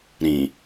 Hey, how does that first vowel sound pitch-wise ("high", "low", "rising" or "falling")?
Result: low